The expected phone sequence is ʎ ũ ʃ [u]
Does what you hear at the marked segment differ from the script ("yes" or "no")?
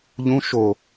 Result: yes